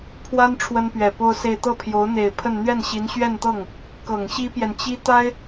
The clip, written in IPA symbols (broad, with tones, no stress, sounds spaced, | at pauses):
pʰ w a˥ n ʈ͡ʂʰ w ə˥ n p ɥ ɛ˨˩ p o˥ ʊ̯ s e˥˧ ɪ̯ t̪ ɤ˥˩ pʰ j o˧˥ ʊ̯ n̪ e˨˩ ɪ̯ pʰ ə˥˧ n n̪ ɥ ɛ˥˩ n ɕ i˧˥ n ɕ ɥ ɛ˥˧ n t̪ ɤ˥˩ ŋ | k ɤ˨˩ ŋ ɕ i˥ p j ɛ˨ n t͡ɕ i˥ t̪ a˥ ɪ̯